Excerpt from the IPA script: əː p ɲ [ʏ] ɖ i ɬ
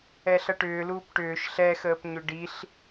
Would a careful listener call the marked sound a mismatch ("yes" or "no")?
no